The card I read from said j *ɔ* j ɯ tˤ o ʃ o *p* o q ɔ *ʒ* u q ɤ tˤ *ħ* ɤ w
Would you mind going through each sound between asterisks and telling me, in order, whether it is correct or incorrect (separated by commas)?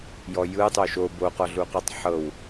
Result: correct, incorrect, incorrect, correct